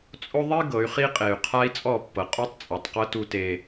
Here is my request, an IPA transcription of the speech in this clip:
t͡sʼ o˦ ðˤ i˦ ɡ ɤ˨˦ y̯ χ i˦ qʼ e˨ y̯ qʰ a˦ i̯ t͡sʼ ɔ˦˨ pː ɤ˨ qʼ o˦ tˤ t͡sʼ ɛ˨ tˤ q ɤ˦ t u˦ t e˦

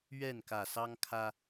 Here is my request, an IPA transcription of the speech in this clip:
ɥ ɛ˥˨ n k ä˨˩ s ɑ˦ ŋ kʰ ä˦

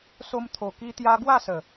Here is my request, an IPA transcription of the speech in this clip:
s o˧ m t̪ʰ o˨˩ k i˧ t̪ j a˧ ɡ w a˥˧ s ə˨˩

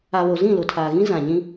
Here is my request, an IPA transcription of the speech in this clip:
a˨ β o˨ z ĩ˦˨ l ʊ˨ tʰ aː˨ ɣ ĩ˦ z ã˨ ɲ ĩ˦

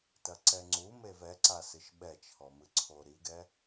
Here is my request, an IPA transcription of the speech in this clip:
t ɐ ǀ ɛ ŋ͡ǀ u m e v ɛ ǀ a s ɨ ʃ ɓ ɛ t͡ʃʰ ɔ m ɨ ǀʰ o ɾ i ɡ ɛ

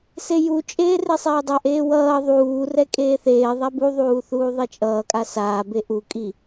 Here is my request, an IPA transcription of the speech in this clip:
s e j u t͡ʃʼ eː r e sˤ eː dˤ a ʔ eː w ʌː ðˤ uː r ɛ kʼ eː θ eː ðˤ a b u ðˤ uː θ uː ðˤ e t͡ʃʼ ʌː kʼ a s aː b e ʔ u kʼ i

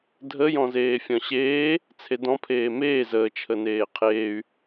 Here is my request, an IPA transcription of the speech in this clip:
dʱ ə j ɔ̃ z eː fʲ ɔ̃ ɕ eː | t͡sʰ e d ɔ̃ pʰ eː m eː z əː t͡ʃʰ ə n eː qʰ eː y̯

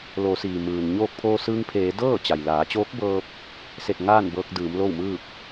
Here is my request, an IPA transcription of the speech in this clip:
l oː˩˧ s iː˩ m ɯː˩ n ɲ oː˧ k̚ pʰ oː˧ s ɯː˧ ŋ pʰ eː˩˧ d ɤː˥˨ t͡ɕ a˩ j l aː˩˧ t͡ɕ oː˧˥ k̚ b ɤː˧ p̚ | s e˧˩ t̚ ŋ aː˥˨ n b ɤː˧ k̚ d ɯː˩˧ m l o˥˨ w m ɯː˥˨ p̚

